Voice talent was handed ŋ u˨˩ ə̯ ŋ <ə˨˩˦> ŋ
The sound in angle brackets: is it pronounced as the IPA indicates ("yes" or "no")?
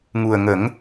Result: yes